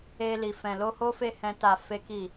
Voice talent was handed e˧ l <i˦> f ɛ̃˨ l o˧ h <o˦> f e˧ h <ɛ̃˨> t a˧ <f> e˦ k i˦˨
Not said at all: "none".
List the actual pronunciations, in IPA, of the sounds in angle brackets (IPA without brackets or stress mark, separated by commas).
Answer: i˨, o˦, ɛ̃˦, f